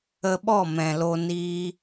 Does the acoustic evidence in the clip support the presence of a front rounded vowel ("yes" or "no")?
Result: no